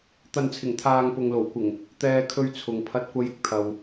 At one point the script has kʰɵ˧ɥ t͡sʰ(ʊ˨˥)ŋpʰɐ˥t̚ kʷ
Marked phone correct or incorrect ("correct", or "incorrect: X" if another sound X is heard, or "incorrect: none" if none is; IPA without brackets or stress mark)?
incorrect: ʊ˨